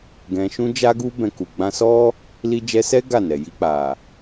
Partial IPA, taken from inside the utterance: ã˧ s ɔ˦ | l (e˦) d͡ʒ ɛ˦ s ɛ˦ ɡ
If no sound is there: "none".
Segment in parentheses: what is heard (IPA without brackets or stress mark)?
i˦